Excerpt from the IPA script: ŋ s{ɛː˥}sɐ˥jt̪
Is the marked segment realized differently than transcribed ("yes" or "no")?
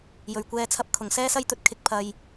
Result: no